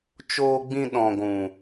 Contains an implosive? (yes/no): yes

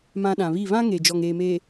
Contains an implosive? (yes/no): yes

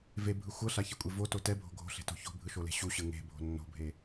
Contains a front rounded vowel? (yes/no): no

